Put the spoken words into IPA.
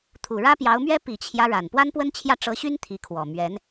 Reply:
t̪ʰ u˨˩ ɻ ä˥ p j ɑ˧˥ ʊ̯ m ɥ ɛ˥ p i˨˩ t͡ɕʰ j ä˦ ɻ a˨˩ n p w a˥ n p w ə˥ n t͡ɕʰ j ä˥˩ ʈ͡ʂ ɤ˧˥ ɕ y˥ n t̪ʰ i˧˥ kʰ w ɔ˨˩ m ɥ ɛ˧˥ n

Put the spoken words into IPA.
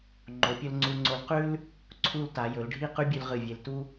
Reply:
ŋ͡ǃ o˩˧ pʲ ɵ˧ l ŋ͡ǀ u˧ ŋ͡ǀ o˧ l q ʉ˥ l | ǀʰ u˥˧ l t a˩˧ j ɵ˩˧ l ɖʱ i˥˧ q ʉ˥ bʲ ʉ˧ l ʁ ɨ˧˩ vʲ e˧ l t u˥

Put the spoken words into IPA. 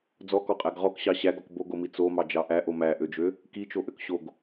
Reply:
d͡z ɔ k ɔ qʼ æ ɡ ʁ ɔ k ɕ ɑ ɕ æ ɡ ɔ k b o ɡ o m i t͡s o m ɑ d͡ʒ ɑ ʔ æ ʔ o m æ ʔ ø d͡ʒ ø | k i t͡ʃ o ʔ ø k ɕ o ɡ

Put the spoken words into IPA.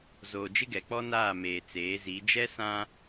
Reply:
z oː˨ d͡ʒ ɪ˦ ɡ ɛ˨ k͡p ɔ˦ n aː˦˨ m eː˨ t͡s eː˨˦ z i˨˦ d͡ʒ ɛ˦ s ã˦

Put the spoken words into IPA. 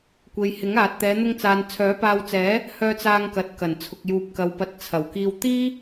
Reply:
kʷ e˨ j h ɪ˨˥ ŋ aː˨ t̚ t̪ ɛː˨˧ n̪ ʊ˧ ŋ t͡s aː˨ n t͡sʰ œː˨˥ p aː˧ w t͡s ɛː˨˥ | h œː˧ t͡s aː˧ ŋ k ɐ˨ t̚ k ɐ˨˩ n t͡sʰ ʊ˨ k̚ j uː˨ p̚ k ɐ˨ w p ɐ˨˥ t̚ t͡sʰ ɐ˨˩ w k iː˧ w t̪ iː˥

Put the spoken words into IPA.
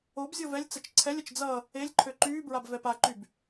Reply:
o b zʲ o v ɛ lʲ t͡s ə t͡ʃ ǀʰ ɛ lʲ ə t͡ʃ d͡z ʌ | e lʲ ǃʰ ø ǃ yː b ɹ a b v ɛ p a ǃ y b

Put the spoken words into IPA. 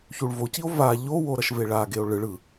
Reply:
ç u ɭ v o c i o̯ v a ʎ o w o ɾ ʌ ʃ v e ɭ a ɡ e o̯ ɭ ɯ ɭ ɯ

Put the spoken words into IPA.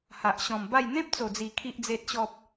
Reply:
h a˨ ʔ ɕ ɔ̃˨˩ m b a˥˧ j n̪ ẽ˦ p̚ t͡s o˨˩ d͡z i˨˩ kʰ i˨ ʔ d͡z e˨ t̚ ɕ ɔ˨ p̚

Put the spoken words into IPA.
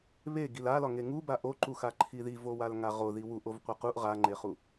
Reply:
β e ɡ i l a l ɒ ŋ e ŋ u b a ʔ o ǃ u x a ǃʰ i ð i v o w a l ŋ a ʁ o ð i w u ʔ o v qʷ e q u ʔ ʁ a ŋ͡ǃ e χ u

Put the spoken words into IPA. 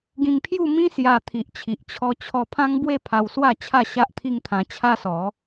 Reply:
ɡ ĩ˧ ŋ pʰ j u˥˧ m ĩ˦ s j a˧ t̪ʰ i˨ ʔ t͡ɕʰ i˨ ʔ t͡ɕʰ ɔ˧ t͡ɕʰ ɔ˧ pʰ ã˦ ŋ b w e˥˧ pʰ a˧ w s w a˥˧ t͡ɕʰ a˥˧ ɕ a˦ ʔ t̪ʰ i˦ ŋ t̪ʰ ã˧ t͡ɕʰ a˦ s ɔ˨˦

